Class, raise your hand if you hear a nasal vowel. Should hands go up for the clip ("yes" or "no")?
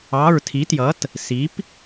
no